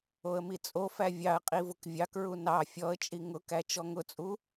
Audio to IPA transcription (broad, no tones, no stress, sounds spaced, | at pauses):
o ə̯ m i t͡sʼ o f æ vʲ ɑ ə̯ qʼ i v ʊ k vʲ ɑ k ɹ u n ɑ fʲ ɔ ə̯ t͡ʃʼ i ŋ ʊ k æ t͡ʃ ɔ ŋ ʊ t͡sʼ u